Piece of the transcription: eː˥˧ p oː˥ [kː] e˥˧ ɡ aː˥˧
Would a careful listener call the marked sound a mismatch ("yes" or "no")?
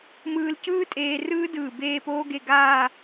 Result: yes